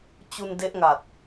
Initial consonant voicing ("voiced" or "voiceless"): voiceless